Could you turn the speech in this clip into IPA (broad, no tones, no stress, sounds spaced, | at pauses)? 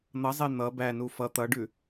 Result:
n̪ ʌ zˤ e n̪ ʌ b æ n u f ʌ t̪ ʌ ɖ ʉ